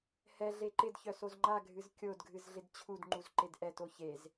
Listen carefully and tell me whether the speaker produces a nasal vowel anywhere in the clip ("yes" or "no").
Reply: no